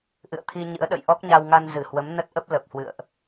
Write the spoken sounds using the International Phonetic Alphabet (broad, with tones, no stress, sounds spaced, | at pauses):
ʔ ɨ̰˧˨ ə̯ t̪ʰ i˧ ɲ ɨ̰˧˥ ə̯ ɗ ə̰˧˨ j ʔ ɔ˦˥ k̚ ɲ a˧ w ŋ a˧ n z ɨ˧˩ h w ə˨˦ m n ə˦˥ t̚ ʔ ə˦˥ p̚ l ə˨˩ p̚ h w ɨ̰˧˨ ə̯ ʔ